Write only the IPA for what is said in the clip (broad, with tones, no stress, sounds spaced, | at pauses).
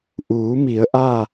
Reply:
ʔ uː˩˧ m i˩˧ ə̯ ʔ a˥˨